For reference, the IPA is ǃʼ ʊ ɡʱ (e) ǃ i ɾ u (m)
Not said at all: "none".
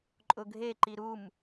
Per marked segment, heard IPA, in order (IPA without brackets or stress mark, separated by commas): e, m